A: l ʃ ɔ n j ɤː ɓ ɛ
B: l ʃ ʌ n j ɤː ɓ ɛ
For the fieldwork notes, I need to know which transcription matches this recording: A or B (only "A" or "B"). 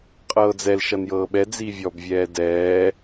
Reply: B